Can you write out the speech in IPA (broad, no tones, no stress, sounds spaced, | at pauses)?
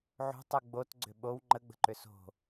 ʕ o̤ tˤ u ɡ͡b o t ɡ͡ǀ ʏ ɓ o w ŋ͡ǃ ə ɡ͡b ə̤ ǃ ʏ s o̤